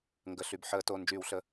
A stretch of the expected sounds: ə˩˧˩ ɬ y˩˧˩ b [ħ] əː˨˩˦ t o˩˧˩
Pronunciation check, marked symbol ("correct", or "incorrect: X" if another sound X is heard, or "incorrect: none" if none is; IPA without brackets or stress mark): correct